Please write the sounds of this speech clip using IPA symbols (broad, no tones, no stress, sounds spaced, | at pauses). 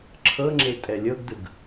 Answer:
ǁʰ ɤ ŋ͡ǁ e tʼ ɛ lʲ ɤ ɡ d ɯ ɡ